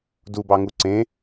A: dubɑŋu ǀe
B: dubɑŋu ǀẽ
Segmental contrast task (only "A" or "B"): B